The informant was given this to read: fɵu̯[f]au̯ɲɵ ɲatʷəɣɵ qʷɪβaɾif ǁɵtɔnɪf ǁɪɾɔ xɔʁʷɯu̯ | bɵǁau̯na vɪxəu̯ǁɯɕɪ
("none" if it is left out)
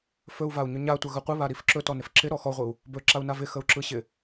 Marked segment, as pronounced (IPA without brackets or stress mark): v